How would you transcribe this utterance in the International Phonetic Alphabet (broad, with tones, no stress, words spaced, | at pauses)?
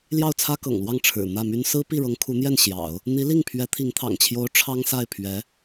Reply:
ljɑ˥˩ʊ̯t͡sʰä˥kɤ̰˨˩ŋlwɑ˥˩ŋ ʈ͡ʂʰɻ̩˨˩ n̪ä˥˩my˥n sɹ̩˥ pi˥˩ɻɤ˧˥ŋ kʰu˧˥n̪jɛ˥˩n ɕjɑ̰˨˩˦ʊ̯ | n̪i˧˥li˥˩ŋpʰɥɛ˧˥ t̪ʰi˧˥ŋt̪ʰɑ̰˨˩ŋt͡ɕʰjo˧˥ʊ̯ ʈ͡ʂʰɑ˥ŋsa˥˩ɪ̯ pʰɥɛ˧˥